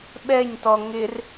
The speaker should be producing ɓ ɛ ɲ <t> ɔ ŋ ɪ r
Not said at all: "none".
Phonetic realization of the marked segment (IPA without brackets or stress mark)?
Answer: t